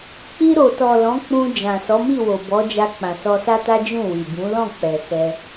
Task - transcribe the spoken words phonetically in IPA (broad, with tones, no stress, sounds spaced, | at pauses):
k͡p i˧ ɾ o˨ t ɔ˨ l ɔ̃˨˦ k͡p ũ˧ d͡ʒ ã˨ s ɔ˨˦ m i˦˨ w o˨ b ɔ˨˦ d͡ʒ a˧ k͡p ã˨ s ɔ˧ s a˦ t a˦ d͡ʒ ũ˦˨ w i˨ b ũ˨˦ l ɔ̃˦˨ k͡p ɛ˨ s ɛ˧